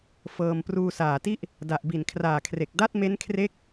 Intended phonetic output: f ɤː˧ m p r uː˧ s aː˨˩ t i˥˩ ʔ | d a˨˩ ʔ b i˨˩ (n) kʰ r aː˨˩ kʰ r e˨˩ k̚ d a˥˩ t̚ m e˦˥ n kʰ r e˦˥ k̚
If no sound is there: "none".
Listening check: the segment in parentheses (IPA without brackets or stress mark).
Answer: n